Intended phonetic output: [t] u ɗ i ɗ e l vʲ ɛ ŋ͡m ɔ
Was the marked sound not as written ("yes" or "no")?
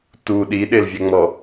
no